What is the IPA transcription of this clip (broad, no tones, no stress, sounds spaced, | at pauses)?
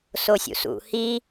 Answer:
s o sʲ ṵ s ṵ h i